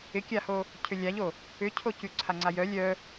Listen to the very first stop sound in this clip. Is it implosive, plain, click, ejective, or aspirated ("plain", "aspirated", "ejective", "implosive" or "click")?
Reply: plain